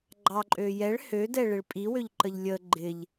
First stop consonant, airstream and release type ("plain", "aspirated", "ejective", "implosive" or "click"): click